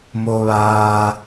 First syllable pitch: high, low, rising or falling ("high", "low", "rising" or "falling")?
low